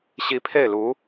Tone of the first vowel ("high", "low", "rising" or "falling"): rising